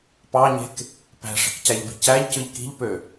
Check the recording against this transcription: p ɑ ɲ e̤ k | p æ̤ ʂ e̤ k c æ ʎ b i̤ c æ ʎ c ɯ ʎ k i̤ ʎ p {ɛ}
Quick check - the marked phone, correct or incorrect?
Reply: incorrect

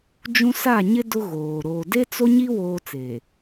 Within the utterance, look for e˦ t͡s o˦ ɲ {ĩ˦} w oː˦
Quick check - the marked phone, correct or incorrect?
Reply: incorrect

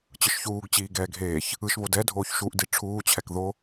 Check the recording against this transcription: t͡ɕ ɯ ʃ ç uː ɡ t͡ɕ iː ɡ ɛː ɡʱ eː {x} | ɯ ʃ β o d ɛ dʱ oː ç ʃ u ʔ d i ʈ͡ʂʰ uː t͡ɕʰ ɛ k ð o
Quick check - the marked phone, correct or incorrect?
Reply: incorrect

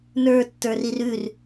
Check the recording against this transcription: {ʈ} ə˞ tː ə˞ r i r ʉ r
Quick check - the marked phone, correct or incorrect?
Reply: incorrect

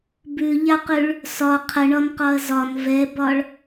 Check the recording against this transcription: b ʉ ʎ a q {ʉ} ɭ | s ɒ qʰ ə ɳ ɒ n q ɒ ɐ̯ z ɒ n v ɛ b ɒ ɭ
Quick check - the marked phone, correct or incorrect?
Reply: correct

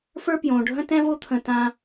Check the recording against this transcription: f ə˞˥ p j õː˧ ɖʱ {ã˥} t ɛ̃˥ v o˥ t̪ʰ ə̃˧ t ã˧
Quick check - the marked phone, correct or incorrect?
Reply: incorrect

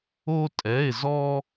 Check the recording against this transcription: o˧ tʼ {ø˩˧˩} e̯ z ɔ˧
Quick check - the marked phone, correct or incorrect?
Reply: incorrect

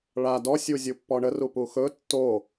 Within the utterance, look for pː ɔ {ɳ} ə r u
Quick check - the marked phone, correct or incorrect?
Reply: correct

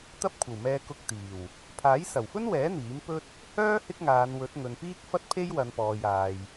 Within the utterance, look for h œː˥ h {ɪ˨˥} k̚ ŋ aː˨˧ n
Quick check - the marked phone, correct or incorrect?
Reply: incorrect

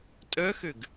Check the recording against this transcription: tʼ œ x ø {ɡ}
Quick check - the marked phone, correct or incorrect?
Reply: correct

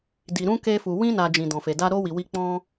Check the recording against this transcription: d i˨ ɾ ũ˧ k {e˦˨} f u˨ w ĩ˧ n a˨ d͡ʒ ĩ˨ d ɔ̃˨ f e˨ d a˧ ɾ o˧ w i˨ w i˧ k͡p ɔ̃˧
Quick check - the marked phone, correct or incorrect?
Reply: incorrect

